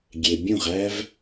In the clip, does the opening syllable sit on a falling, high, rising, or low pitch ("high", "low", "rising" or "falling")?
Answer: low